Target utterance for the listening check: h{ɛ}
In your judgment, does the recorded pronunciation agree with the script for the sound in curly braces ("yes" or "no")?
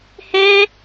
yes